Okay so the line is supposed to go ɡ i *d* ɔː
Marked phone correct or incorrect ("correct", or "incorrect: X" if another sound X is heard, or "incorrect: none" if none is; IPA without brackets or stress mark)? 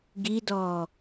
correct